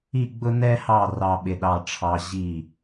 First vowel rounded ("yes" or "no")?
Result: no